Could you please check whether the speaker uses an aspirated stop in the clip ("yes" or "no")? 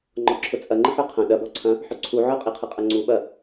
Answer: yes